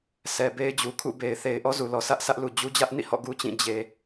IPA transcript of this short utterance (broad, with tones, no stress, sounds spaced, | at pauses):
sʰ ɛ˨ b e˦ ɪ̯ d͡ʑ u˨ kʰ ṵ˦˨ b e˨ ɪ̯ θ e˨ ɪ̯ ʔ ɔ˦ z u˨ l ɔ˨ sʰ ä˦ ʔ sʰ ä˦ ʔ l u˨ d͡ʑ u˦ d͡ʑ ä˦ ʔ n ḭ˦˨ h ɔ̰˦˨ ɡ u˦ t͡ɕ ĩ˦˨ d͡ʑ e˨